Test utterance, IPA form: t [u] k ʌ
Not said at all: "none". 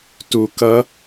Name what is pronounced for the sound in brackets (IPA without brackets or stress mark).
u